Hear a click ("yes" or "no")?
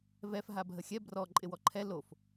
yes